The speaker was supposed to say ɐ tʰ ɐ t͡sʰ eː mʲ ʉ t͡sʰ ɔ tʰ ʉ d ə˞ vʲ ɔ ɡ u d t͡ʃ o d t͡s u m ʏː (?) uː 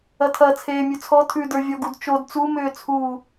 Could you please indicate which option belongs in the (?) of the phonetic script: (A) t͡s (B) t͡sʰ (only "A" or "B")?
B